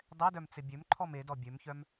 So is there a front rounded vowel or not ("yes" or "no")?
yes